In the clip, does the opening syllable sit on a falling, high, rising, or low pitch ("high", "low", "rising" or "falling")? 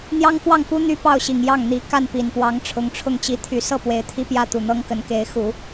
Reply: high